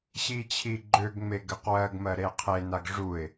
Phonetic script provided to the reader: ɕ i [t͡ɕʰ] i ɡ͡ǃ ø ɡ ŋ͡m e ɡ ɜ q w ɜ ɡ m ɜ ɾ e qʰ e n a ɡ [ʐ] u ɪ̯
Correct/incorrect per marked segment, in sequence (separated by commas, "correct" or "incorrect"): correct, correct